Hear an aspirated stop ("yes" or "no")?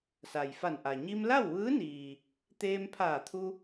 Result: yes